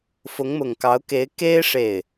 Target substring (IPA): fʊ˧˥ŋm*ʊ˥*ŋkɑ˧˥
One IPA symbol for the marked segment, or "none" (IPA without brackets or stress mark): ʊ˨˩